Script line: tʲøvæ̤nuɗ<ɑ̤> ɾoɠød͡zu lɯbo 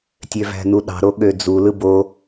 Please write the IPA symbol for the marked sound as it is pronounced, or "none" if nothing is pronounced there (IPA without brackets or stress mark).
ɑ̤